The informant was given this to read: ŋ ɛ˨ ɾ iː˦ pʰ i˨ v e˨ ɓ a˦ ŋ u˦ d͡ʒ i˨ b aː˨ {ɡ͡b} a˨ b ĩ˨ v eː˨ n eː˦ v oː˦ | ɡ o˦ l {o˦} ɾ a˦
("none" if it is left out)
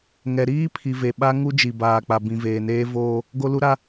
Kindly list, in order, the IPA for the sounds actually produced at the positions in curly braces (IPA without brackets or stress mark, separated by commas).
k͡p, u˦